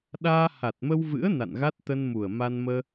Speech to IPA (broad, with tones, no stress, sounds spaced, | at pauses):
ɗ aː˧ h a˨˩ t̚ m ə˧ w v ɨ̰˧˥ ə̯ n a̰˧˨ n ɣ a˦˥ t̚ t̪ ə˧ n m u˨˩ ə̯ m a˧ n m əː˧